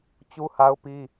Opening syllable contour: high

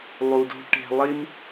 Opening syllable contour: low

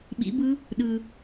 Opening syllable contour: rising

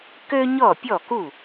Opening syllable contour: high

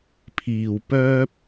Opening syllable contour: low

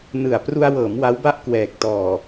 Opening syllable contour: low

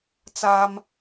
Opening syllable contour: high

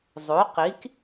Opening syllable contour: rising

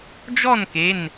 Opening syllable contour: falling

